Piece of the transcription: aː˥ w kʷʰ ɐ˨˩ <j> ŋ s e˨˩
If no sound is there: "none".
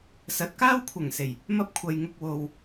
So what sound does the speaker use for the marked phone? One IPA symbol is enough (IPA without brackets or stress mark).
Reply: none